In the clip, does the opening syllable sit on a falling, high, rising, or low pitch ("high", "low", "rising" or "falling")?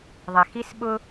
low